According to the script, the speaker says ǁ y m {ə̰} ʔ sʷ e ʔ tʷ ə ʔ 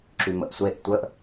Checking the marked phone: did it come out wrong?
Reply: no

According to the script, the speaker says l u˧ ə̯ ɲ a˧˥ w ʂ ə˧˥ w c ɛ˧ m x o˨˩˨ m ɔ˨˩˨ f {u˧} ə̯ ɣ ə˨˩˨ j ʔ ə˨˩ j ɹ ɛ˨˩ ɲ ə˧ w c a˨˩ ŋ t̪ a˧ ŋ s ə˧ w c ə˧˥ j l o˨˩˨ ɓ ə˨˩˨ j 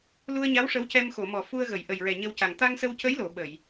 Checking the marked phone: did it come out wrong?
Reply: no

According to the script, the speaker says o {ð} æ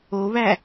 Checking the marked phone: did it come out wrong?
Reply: yes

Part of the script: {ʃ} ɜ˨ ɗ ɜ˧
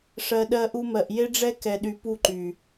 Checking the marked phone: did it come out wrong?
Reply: yes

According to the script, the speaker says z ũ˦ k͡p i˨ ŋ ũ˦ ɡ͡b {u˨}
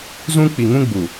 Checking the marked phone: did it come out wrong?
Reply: no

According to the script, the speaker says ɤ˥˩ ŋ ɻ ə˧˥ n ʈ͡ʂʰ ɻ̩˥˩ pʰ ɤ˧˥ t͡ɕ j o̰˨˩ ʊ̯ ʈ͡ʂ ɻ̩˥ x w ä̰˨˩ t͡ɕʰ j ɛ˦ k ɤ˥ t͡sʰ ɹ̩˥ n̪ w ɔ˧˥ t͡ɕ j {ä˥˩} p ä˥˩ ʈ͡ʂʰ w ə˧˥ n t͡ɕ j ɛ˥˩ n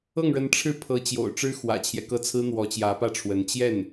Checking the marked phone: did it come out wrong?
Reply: yes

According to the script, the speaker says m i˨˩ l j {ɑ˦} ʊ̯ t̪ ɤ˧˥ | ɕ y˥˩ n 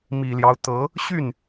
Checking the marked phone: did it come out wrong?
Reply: no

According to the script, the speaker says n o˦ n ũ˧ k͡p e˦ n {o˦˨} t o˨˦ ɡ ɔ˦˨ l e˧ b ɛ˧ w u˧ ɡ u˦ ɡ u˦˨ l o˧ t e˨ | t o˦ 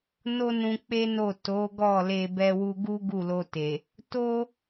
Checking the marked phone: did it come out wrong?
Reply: no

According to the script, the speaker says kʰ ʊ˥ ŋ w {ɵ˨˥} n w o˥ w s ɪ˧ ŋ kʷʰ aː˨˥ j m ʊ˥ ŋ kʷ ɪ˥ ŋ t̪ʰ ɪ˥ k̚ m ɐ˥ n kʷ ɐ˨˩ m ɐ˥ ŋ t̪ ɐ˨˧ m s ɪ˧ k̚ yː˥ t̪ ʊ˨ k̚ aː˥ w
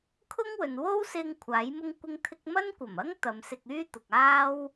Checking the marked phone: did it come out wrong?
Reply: yes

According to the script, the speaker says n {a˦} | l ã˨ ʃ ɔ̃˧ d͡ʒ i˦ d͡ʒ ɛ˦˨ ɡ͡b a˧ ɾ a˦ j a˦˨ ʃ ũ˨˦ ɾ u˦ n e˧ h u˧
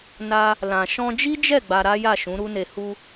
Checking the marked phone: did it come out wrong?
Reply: yes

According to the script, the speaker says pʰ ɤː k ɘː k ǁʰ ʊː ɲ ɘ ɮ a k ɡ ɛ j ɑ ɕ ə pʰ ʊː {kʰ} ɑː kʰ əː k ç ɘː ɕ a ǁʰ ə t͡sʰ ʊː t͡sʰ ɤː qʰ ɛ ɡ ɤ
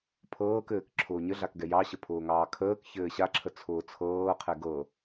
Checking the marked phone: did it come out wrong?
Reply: yes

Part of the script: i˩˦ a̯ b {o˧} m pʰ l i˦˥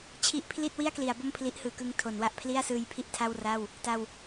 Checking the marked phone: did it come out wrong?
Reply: yes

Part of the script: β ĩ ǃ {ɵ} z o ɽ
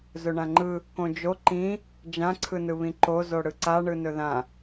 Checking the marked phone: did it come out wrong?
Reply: yes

